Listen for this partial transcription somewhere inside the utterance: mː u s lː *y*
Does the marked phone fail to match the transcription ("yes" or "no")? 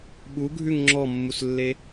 yes